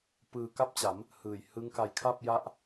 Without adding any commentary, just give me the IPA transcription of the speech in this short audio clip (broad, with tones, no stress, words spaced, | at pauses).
pɯː˧ka˥˩p̚t͡ɕa˩˦m | hɯː˨˩j hɯ˦˥ŋka˧j kʰa˥˩p̚ja˦˥ʔ